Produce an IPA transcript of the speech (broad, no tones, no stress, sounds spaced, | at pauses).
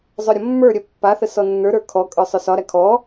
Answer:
zˤ œ ɾʲ ɒ mː ə˞ ɾʲ œ pː a θ ə s ɔ nː ə˞ ɾ ə˞ kʰ ɔ kʼ ə˞ sˤ œ s ɒ ɾ æ kʰ ɔ